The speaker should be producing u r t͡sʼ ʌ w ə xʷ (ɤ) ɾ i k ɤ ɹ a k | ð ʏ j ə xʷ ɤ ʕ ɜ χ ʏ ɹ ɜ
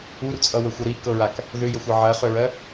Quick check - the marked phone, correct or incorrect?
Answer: correct